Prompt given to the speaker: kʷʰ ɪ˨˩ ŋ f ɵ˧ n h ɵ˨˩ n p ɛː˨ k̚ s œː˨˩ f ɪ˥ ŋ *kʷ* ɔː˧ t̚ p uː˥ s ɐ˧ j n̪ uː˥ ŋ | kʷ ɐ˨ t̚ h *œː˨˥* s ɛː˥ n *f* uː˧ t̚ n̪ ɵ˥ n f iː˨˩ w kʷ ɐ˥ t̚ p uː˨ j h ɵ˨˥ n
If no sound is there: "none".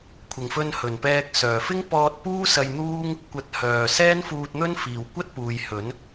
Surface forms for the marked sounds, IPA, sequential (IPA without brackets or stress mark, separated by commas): p, œː˨˩, f